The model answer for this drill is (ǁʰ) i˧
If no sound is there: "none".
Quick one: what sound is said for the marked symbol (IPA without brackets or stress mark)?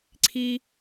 ǀʰ